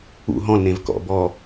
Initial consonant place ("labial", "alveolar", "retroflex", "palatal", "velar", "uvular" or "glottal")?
glottal